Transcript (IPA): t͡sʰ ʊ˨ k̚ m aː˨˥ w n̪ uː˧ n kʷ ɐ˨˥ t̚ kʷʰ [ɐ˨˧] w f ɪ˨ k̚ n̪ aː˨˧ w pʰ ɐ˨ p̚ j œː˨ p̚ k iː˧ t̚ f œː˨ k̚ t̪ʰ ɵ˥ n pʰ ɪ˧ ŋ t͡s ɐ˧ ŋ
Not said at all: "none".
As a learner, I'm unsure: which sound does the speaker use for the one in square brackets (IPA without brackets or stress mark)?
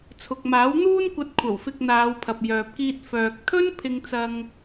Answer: ɐ˨˩